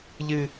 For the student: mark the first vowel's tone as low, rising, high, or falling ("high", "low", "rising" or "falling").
low